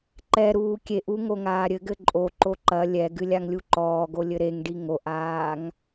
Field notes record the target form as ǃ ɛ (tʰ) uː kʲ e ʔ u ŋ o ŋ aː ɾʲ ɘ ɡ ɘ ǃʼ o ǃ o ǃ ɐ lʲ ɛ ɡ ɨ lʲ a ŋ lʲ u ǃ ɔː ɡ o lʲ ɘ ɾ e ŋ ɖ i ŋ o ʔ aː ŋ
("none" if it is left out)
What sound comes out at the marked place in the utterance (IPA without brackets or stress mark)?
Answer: ɾ